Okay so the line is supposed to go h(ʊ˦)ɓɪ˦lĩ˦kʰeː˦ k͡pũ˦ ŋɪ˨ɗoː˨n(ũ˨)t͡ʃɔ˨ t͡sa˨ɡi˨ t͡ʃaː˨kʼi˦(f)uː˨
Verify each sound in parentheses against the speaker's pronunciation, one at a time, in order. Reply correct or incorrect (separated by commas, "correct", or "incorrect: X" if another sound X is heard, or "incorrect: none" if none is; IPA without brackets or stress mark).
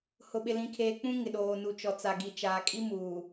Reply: correct, incorrect: u˨, incorrect: m